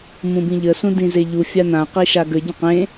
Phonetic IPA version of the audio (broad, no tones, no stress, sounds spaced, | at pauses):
m ũ b ĩ ʎ ə s ũ d ĩ z e ʎ u fʲ a n̪ ã q i ʃ a ɡ ə ɟ ə̃ q ẽ